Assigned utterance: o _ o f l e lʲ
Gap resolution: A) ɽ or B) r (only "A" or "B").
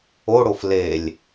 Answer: A